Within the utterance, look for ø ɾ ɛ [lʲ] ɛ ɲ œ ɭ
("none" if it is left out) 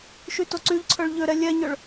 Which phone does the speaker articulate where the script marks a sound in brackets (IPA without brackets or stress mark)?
lʲ